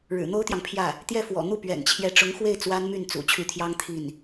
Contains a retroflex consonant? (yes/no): yes